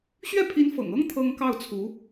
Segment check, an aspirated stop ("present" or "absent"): present